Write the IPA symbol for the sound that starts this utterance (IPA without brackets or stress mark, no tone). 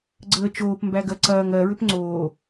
ɡ͡ǀ